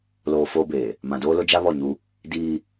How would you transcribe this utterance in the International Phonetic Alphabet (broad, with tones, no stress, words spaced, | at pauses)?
loː˨ foː˦beː˨ | mã˨doː˦lʊ˦d͡ʒa˦ βɔ˦˨ɲu˦ | diː˦